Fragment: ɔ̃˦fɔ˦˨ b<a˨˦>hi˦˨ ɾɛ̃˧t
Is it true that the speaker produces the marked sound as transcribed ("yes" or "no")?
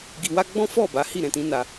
yes